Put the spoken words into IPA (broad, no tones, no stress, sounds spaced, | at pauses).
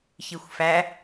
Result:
ç i xʷ f æ